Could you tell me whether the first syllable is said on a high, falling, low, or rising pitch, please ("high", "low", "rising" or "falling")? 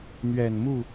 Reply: low